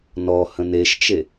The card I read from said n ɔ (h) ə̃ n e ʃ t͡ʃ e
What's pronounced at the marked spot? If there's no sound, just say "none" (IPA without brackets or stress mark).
h